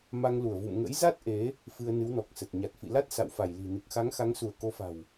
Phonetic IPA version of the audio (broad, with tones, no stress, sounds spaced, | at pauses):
m a˧ ŋ l u˧˩ ə̯ v ṵ˧˨ m ŋ ə̰˧˥ j z a˦˥ t̚ ʔ e˨˦ | f ɨ˧ ə̯ n ɨ˨˦ w n ɔ˨˩ k̚ s ə˨˩ t̚ ɲ a˨˩ t̚ f ḭ˧˨ l a˦˥ t̚ s a̰˧˨ w f a˧˩ j l i̤˨˩ n ɨ˨˩ k̚ x a˨˦ ŋ x a˨˦ ŋ s u˧˩ ə̯ k o˨˦ f a̤˨˩ w